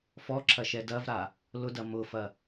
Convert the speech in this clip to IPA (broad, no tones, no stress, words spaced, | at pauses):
fɔǁʰɐʃɛ dɐvɾa | lʊdɐ mʊfɐ